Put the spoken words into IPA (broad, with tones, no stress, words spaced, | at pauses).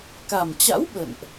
ka˨˩mt͡ɕa̰˧˥w ɓə̰˧˨nʔ